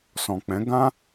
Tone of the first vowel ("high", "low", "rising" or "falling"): low